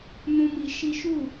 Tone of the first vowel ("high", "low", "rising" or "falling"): high